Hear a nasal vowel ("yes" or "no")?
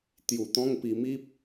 yes